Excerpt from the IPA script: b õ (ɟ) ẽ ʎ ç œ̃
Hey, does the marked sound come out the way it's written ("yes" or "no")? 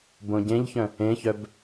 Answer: yes